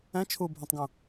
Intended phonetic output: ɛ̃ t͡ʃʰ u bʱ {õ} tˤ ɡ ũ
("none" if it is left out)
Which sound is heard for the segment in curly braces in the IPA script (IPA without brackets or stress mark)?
ũ